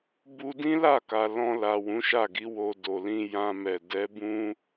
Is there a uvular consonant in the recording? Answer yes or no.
no